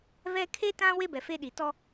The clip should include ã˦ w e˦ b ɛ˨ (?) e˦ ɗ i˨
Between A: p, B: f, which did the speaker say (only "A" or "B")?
B